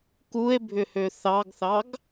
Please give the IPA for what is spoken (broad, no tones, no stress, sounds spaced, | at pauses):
k u e̯ bʱ ʏ h ø θ ɑ ɡ θ ɑ ɡ